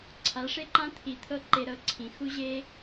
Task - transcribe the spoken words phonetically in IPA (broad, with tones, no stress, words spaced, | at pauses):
ǀʰa˨˦ʂe˦ǃã˦ t̪ʰi˨t̪ʰɤ˦ ǃe˧ɾɤ˧ǀʰĩ˨ xu˦ʑe˦